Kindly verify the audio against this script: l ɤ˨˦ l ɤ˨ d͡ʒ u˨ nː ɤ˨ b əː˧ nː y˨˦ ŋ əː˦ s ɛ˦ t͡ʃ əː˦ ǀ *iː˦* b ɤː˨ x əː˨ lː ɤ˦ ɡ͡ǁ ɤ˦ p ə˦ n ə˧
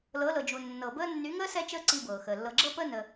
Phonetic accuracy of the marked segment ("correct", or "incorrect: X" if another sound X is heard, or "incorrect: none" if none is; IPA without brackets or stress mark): incorrect: i˦